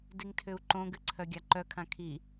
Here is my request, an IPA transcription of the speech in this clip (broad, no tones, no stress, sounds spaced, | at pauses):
d i ŋ tʰ ʏ u̯ ǃ õ ɡ ɨ ǀʰ œ ɡʲ a ǃ œ kʰ ã kʰ i